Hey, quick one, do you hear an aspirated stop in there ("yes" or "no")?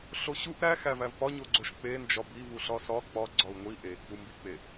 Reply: no